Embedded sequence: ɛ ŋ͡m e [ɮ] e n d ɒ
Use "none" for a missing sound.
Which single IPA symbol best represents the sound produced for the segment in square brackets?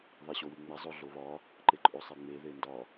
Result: ð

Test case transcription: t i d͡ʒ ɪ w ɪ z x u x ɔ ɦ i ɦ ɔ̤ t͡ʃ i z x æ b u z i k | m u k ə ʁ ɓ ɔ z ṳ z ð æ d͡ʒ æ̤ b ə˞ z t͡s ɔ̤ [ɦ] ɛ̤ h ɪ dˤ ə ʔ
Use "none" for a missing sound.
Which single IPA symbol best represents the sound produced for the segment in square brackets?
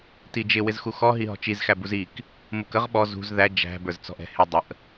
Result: ʔ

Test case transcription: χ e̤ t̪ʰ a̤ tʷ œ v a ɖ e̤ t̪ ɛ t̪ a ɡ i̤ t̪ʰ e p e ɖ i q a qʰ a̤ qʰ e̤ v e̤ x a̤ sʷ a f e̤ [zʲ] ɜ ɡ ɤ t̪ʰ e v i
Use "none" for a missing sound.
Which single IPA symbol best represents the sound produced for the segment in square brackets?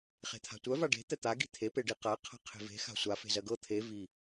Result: z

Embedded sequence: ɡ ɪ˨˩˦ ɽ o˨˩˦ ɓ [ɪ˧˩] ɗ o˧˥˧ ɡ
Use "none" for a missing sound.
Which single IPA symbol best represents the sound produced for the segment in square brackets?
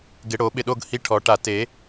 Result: ɪ˧˩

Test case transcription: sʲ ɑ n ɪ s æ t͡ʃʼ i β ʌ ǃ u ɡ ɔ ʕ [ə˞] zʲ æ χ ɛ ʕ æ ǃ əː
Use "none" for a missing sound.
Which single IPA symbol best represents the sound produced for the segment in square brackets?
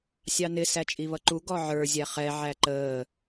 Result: ə˞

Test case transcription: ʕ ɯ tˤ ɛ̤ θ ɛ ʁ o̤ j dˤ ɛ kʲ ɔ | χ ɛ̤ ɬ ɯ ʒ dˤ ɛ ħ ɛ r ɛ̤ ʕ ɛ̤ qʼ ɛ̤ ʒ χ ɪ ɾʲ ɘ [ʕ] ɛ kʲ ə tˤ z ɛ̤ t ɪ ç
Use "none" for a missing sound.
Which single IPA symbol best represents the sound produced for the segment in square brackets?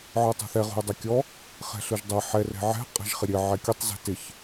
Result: ʕ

